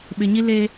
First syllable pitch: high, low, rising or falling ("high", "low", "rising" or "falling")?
low